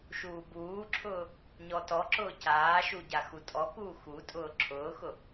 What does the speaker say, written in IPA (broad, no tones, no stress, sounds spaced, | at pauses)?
ʃ uː b uː ǁʰ ʊː | ɲ ɔ t ɔ ǁ ʊː c aː ʃ u ɟ a x u tʼ ɔ k uː x u tʼ ʊː ǁʰ ʊː x ʊ